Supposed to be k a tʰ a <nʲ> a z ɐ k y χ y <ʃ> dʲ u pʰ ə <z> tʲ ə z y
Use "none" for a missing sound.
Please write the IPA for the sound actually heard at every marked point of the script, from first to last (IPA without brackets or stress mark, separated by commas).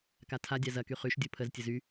dʲ, ʃ, z